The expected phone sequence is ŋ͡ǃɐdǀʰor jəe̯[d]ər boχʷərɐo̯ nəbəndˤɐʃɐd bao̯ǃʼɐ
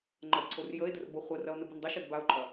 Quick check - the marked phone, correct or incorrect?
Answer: correct